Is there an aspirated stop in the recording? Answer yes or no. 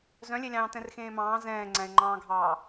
no